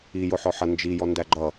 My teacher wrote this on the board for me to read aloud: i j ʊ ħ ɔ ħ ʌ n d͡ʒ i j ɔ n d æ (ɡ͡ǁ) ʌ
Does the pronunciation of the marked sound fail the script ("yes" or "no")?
yes